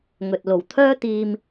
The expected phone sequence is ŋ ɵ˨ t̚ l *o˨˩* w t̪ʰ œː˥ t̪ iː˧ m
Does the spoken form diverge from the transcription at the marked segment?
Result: no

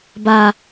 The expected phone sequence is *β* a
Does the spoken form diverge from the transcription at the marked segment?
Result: yes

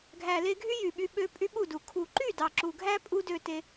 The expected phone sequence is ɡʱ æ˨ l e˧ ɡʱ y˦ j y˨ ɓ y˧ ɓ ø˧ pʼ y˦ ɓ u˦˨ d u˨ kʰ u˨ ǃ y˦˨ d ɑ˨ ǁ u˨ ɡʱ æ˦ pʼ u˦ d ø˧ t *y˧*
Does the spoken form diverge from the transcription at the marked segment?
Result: yes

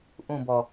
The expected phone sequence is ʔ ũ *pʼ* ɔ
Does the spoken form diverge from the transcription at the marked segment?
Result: yes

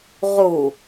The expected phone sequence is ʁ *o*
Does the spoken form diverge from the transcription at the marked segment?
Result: yes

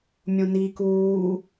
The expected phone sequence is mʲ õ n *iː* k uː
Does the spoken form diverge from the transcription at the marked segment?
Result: no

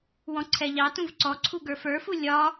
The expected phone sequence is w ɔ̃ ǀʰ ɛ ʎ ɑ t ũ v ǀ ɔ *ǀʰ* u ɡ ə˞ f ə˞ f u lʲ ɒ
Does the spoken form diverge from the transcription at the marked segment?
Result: no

